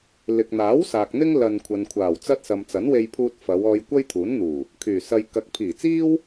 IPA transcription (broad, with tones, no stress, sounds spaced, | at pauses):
l ɪ˨ k̚ n̪ aː˨˥ w s aː˨ k̚ n̪ ɪ˥ ŋ l ɐ˧ n kʷʰ ɐ˨ n kʷʰ aː˨˩ w t͡s ɐ˥ t̚ s ɐ˨ m t͡s ɐ˨˥ n w e˧ j pʰ uː˧ t̚ f ɐ˨˧ w ɔː˧ j kʷ ɐ˥ j t̪ʰ uː˨˥ n n̪ uː˨˩ | kʰ yː˨˩ s ɐ˧ j k ɐ˨˥ k̚ pʰ iː˨˩ t͡s iː˥ w